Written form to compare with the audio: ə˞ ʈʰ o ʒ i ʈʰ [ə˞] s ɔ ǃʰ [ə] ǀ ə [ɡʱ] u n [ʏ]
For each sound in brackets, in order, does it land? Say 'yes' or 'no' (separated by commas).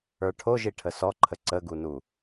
no, yes, no, no